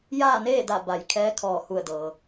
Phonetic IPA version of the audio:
jaː˥˨neː˥˨da˧˩ ba˩˧jkʰɛː˧˥ kʰɔː˧˩hu˧˩ə̯dɤː˩

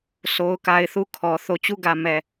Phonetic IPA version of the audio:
sʰo˨ʊ̯ka˨ɪ̯ θu˦˨kʰɔ˨ θo˨ t͡ɕu˦˨ɡä˨mɛ˨

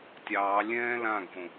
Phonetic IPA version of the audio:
tʲɑː lʲɛ̃ː lãɡʱõ

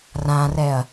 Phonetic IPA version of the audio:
rãrɛɐ̯

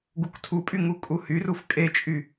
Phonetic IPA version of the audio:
ɡuktʰupʼy ŋukʼuhyruf kʼet͡ʃʼy

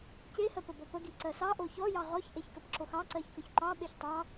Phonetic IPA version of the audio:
cehɜpə bɔpəɡi ǀɜsɑ ʔoçɔjɑ ʁɔçʔeçkəpǁox ɑǀɜç kəçǃɑ ɓeçtˤɑ

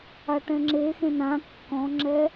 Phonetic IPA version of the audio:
aʈɛ̃ŋ͡ǁexẽ nã kːɔ̃ŋ͡ǁɛ

